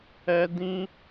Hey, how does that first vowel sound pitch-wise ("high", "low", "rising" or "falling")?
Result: high